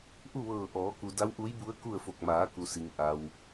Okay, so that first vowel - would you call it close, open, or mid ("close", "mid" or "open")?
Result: close